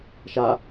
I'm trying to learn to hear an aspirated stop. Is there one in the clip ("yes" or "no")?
no